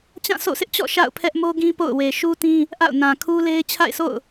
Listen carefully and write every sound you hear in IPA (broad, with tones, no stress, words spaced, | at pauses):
t͡ɕã˦˨sʰo̰˦˨sɪ˦ʔt͡ɕɔ̰˦˨ ʃa̰˦˨ʊ̯pʰɛ˦ʔmo˦ɡĩ˦ po̰˦˨ʊ̯we˨ ʃu˦tĩ˦ | ʔa̰˦˨ʊ̯nã˨kʰu˦le˦ɪ̯ t͡ɕʰa̰˦˨ɪ̯sʰo̰˦˨ʊ̯